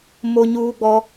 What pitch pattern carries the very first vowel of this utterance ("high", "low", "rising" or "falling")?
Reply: high